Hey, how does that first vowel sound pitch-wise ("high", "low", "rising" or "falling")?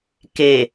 low